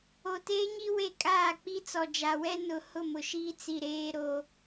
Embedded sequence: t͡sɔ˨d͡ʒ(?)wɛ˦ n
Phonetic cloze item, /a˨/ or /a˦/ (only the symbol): a˨